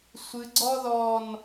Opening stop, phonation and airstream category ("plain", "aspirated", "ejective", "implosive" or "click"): click